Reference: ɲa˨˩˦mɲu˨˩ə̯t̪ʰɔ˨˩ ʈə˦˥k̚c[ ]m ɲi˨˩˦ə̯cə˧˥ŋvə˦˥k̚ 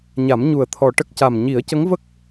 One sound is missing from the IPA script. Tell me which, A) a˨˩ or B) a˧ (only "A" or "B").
A